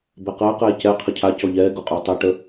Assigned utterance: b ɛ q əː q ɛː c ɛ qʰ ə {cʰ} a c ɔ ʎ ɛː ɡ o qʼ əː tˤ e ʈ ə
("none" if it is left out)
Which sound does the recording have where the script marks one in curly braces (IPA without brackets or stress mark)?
cʰ